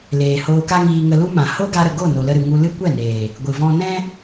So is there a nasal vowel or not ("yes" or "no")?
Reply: yes